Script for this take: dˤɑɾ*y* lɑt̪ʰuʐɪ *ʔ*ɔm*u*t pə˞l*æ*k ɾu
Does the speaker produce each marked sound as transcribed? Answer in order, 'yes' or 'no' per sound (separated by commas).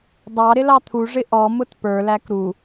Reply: no, yes, no, yes